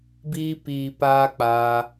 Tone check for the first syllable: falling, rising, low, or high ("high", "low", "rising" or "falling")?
high